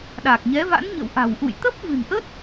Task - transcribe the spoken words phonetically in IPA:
ɗaː˨˩k̚ɲɛ˨˦va̰˧˥nɲə̰˧˨w ʔa̤˨˩wʔṵ˧˨j t̪ə˦˥p̚vɨ̤˨˩nʔə˦˥t̚

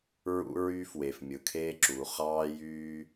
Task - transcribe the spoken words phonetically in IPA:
ɹṵ˥ɹyː˥fwe˩f mʲɯ˩kʰeː˥ǁuː˩ χɑː˥jyː˥

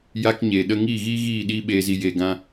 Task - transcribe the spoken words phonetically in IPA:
ja˦kɲeː˨ɗə˦ ŋiː˦˨ɣiː˦ɣiː˦˨ ɗiː˦ɓeː˧zi˧ jeː˧ɡã˦

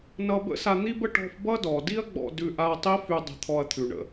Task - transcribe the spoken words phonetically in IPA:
nʌ˧ bə̰˥sa˧n̪i˥bə˥ ʈɔ̤˧fbʌ˥ dɔ˩di˥ɐ̯ ɡ͡bɔ̰˧dʉ˧ʔa˧ɐ̯ tˤi˥fy˧ dˤə̤˧t̪ʰɔ˧ɐ̯t̪ʰʉ˩ɳə̰˩

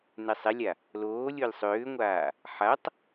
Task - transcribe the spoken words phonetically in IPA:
nɛsˤɛlʲa | loː lʲolʲsˤʏːŋʷaː | ħatˤ

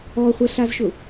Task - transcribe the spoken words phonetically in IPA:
ɔχʷɛɬazʃʊ

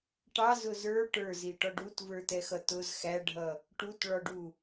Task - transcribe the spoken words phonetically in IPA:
ʈɑzʊ zə˞ ʈə˞ziʈɔɖ utvə˞tɛxʌ tʊz xæɖʱʌ | ʈutɭɔɖu

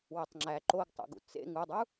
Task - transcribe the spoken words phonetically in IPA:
wetˤŋ͡ǁæ ǃoɡtˤṵ ɡṵt͡sḛ ŋudˤu

